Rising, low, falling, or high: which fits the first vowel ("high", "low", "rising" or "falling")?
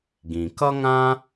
low